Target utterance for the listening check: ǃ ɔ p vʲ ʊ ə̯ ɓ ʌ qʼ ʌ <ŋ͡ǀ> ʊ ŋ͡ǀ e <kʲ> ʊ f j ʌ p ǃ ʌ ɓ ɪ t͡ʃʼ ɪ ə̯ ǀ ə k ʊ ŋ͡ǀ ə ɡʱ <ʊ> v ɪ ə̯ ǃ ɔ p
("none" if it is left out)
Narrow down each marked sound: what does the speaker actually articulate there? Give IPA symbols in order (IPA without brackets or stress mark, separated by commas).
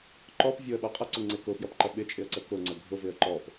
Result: ǀ, k, ʊ